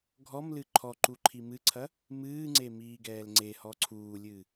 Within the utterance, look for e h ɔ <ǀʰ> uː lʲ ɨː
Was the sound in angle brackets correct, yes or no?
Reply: yes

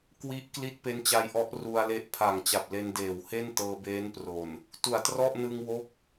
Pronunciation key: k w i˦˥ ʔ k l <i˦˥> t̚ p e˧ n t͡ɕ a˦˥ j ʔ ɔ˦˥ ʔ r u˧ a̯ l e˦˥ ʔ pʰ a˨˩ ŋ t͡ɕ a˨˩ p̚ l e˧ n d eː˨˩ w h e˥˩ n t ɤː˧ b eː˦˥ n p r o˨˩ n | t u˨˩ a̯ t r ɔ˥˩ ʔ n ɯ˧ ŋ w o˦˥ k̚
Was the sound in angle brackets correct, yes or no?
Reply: yes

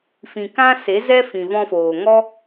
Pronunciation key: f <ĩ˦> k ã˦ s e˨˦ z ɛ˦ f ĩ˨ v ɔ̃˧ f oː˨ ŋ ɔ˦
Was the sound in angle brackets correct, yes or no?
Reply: no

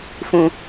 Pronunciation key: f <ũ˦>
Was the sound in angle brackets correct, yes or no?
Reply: yes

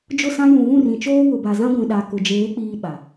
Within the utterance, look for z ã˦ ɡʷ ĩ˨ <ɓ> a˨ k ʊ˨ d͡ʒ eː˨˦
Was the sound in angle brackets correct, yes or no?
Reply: no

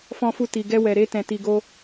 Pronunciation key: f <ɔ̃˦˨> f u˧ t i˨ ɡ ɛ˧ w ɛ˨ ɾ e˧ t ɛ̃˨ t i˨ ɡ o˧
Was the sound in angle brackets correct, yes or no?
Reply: no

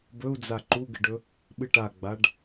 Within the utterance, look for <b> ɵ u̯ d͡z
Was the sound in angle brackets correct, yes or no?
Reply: yes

